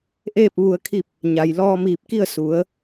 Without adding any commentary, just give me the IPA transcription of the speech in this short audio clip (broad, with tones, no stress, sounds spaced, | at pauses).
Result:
ʔ eː˥˨ p̚ ʋ u˧ ə̯ kʰ i˥˨ p̚ | ɲ a˩ j l ɔː˧ m iː˧˩ p̚ k i˥˨ ə̯ s u˩˧ ə̯